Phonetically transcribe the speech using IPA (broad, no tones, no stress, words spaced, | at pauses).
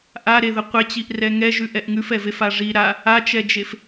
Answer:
ʔaɾeðə qʷet͡ɕiʔrɛ ŋɛʒʉʔɛʔ ŋʉfɛvefa ʐi ɾa | at͡ʃɛd͡ʒef